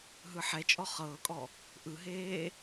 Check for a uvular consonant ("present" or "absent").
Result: present